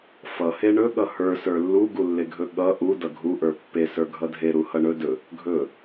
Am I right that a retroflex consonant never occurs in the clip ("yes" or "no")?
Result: no